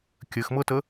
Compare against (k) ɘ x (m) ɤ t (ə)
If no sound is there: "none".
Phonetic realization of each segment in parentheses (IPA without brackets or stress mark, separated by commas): kʲ, m, ə